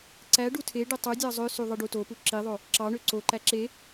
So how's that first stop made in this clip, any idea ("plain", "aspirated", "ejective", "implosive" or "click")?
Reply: click